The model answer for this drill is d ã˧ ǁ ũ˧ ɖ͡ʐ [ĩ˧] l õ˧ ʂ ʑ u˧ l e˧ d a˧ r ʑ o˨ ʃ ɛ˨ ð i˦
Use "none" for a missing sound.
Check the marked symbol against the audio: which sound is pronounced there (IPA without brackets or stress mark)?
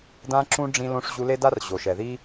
ĩ˧